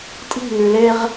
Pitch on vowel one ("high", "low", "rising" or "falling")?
falling